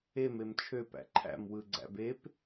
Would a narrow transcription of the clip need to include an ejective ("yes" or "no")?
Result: no